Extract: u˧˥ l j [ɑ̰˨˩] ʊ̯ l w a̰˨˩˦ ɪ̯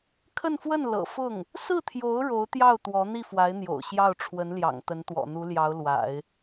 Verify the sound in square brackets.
incorrect: ɑ˧˥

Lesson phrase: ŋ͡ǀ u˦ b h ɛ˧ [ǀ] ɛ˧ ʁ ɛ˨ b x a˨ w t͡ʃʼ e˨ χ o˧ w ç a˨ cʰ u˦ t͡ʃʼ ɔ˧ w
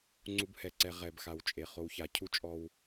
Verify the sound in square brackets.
correct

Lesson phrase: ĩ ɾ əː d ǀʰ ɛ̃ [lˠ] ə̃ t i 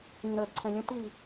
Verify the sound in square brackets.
incorrect: lʲ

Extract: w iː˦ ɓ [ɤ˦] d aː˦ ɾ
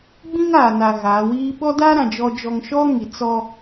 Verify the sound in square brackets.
incorrect: ɔ˦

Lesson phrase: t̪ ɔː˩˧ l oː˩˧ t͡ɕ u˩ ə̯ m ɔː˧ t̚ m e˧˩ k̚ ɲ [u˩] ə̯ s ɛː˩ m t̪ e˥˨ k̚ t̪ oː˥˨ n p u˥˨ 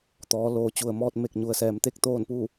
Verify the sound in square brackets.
correct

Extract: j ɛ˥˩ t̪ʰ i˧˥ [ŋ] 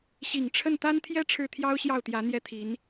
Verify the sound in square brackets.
incorrect: n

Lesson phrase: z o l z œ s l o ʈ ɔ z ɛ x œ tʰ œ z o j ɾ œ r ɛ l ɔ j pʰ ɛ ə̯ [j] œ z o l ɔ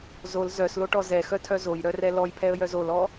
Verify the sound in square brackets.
correct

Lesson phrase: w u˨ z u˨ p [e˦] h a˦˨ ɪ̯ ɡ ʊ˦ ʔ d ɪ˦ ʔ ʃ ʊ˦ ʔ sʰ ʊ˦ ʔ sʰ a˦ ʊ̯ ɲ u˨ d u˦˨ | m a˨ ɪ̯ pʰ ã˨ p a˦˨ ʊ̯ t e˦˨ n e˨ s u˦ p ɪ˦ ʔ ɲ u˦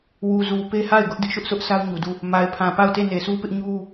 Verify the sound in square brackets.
correct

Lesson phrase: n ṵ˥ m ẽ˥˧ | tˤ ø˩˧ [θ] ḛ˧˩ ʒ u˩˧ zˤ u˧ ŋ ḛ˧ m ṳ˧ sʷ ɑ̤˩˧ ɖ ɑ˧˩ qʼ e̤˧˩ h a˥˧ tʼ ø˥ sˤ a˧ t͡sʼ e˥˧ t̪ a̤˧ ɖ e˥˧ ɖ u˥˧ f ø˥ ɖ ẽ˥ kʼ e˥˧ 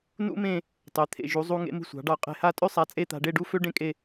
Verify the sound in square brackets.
incorrect: t̪ʰ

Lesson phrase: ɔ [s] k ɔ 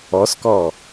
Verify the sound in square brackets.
correct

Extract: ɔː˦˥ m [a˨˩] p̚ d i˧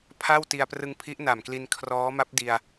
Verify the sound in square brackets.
incorrect: a˦˥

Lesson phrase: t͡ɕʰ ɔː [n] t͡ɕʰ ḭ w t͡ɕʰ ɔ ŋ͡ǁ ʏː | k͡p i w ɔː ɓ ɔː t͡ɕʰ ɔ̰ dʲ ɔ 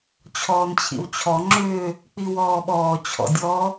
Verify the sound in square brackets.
correct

